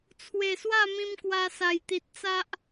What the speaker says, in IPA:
t͡sʰ w e˨˩ s w a˥˧ m ĩ˧ m k w a˧ s a˨˩ j t̪ i˨ t̚ t͡s a˦ ʔ

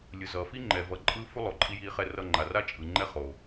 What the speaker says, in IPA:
lʲ ɯ˩ z ʌː˩ f i˦ ŋ͡ǃ ɛ˩ v ʌ˨ ǃʼ ɯː˦ f u˦ lˠ o˩ ǃʼ i˨ j iː˨ χ ɛ˨ r ʌ˨ ŋ͡ǃ a˩ r a˦ t͡ʃʼ ɯ˩ ŋ͡ǃ ɛ˥ χ o˩

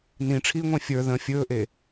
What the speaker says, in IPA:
n ĩ ʈ͡ʂʰ iː ŋʷ ẽ fʲ ə˞ ð ə̃ fʲ ɵː ʔ e

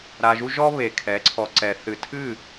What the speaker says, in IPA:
ɾ a˧ ʒ u˦ ʒ ɔ˦ β e˨ kʰ ɛ˨˦ ǀʰ ɔ˨ ǀ ɛ˨ θ ɨ˨ tʰ ɨ˦˨

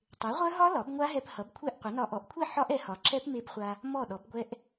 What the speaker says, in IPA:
tˤ e˩˥ ʁʷ œ˦˥ ɦ ɒ˦˥ l ɒ˩˥ b ŋʷ a˦˥ ɦ ɛ˧ p h ʌ˩˥ b kʷʰ ɛ˥˩ ʔ qʷ ʌ˩˥ n ɒ˧ ʔ ɔ˩˥ ʔ kʷʰ e˥˩ ħ ɒ˦˥ ʔ ɛ˩˥ h ɒ˩˥ ǁ ɛ˦˥ p m e˧ b χʷ a˧ | m ɔ˥˩ ɗ ɔ˩˥ b ɡʷ ɛ˦˥ ʔ

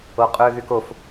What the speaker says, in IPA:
o qʼ ø ɣ y k o f

